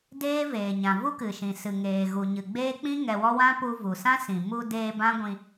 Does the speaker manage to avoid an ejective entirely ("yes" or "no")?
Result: yes